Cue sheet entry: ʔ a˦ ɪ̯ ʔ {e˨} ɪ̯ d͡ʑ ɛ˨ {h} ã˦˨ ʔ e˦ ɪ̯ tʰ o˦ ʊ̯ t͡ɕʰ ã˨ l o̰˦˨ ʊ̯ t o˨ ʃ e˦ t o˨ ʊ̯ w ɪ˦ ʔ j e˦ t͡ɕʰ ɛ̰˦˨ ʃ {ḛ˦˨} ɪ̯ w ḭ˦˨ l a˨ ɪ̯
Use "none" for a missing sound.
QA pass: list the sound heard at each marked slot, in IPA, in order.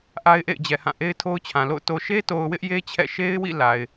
ḛ˦˨, h, e˦

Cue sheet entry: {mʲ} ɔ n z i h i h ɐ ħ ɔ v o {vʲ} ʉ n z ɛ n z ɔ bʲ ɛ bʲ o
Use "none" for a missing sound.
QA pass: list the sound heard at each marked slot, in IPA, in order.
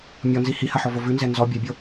mʲ, v

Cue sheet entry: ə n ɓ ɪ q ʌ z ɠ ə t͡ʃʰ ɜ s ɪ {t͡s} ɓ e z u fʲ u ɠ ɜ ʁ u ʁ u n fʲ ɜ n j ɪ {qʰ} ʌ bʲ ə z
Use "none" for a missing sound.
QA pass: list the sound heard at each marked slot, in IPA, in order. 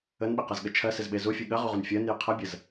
z, qʰ

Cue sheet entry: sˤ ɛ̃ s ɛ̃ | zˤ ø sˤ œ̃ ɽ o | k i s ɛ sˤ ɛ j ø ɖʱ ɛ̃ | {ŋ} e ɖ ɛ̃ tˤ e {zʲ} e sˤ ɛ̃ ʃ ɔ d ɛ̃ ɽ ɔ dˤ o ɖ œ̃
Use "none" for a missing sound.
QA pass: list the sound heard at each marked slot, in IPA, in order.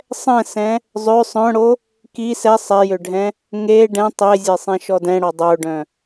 ŋ, zʲ

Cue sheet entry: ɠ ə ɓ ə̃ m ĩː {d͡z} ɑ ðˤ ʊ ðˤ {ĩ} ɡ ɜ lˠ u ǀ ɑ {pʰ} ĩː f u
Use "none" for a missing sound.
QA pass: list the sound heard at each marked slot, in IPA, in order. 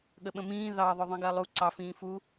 ð, ĩ, f

